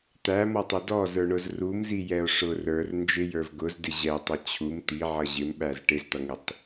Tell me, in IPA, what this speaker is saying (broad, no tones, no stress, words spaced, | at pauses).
t̪æmɔtˤʊ dɔzə˞ɳʊz rumzijɛo̯ ʂʊ rə˞r nd͡ʒɪjə˞v ɡʊzdɪ ʑɛtˤʌ t͡ɕʰum t̪iʕʌ ʑɪmɓæz ʈɪzt̪ʌŋɪtˤ